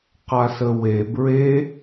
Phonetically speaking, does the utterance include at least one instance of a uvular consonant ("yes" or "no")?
yes